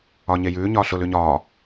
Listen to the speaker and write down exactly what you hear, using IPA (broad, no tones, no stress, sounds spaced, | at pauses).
ɒ ɲ e j ʉː ɲ ɒː ɬ ʊ l ʉ ɲ ɒː